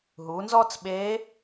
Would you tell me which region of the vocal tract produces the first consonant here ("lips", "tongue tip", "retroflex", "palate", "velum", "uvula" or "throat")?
throat